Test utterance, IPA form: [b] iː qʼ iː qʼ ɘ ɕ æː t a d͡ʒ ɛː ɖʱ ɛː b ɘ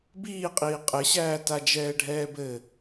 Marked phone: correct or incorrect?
correct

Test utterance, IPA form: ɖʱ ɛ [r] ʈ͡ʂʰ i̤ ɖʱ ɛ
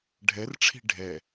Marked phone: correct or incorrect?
correct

